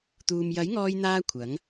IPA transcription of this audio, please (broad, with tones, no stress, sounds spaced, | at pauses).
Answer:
t̪ uː˨ m j ɐ˨˥ j ŋ ɔː˧ j n̪ aː˧ kʷʰ ɐ˨˥ ŋ